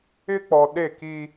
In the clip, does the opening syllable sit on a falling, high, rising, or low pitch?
high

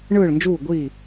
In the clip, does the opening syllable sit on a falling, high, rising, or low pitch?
falling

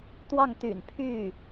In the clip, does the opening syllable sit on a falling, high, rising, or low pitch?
falling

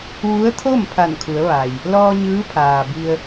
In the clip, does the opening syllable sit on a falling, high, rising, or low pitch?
rising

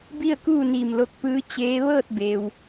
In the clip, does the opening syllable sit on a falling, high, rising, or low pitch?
falling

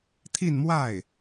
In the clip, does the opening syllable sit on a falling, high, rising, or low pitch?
falling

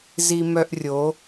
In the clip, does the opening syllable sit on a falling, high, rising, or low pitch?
high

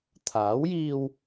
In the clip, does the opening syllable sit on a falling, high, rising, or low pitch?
rising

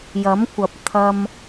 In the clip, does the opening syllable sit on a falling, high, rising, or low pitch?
rising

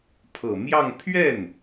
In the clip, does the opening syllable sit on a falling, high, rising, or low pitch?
low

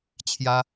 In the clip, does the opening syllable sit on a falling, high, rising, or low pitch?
high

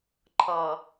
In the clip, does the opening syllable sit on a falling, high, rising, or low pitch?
low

